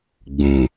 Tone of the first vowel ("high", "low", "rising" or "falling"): low